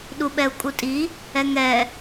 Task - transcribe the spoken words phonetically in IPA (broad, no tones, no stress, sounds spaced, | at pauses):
ɗ u ɓ ɛ u̯ kʼ u tʼ i | ɛ ŋ ɛ